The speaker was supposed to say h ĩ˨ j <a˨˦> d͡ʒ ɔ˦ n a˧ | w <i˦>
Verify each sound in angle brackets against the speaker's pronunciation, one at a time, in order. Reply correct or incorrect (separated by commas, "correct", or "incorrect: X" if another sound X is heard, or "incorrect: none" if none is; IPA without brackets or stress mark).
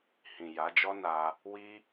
correct, correct